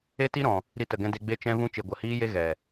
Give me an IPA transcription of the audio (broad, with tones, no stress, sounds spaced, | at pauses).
e˦ t i˦ ɾ ɔ̃˨ | ɾ i˧ t ə˨ ɡ ɛ̃˧ d e˧ ɡ͡b e˦ t͡ʃ ɛ̃˦ v ũ˦ t͡ʃ e˨ ɡʷ ə˨ h iː˦ j e˦ ɣ ɛ˨